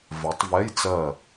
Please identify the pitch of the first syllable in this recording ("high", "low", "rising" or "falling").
rising